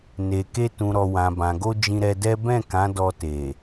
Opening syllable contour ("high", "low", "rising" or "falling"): low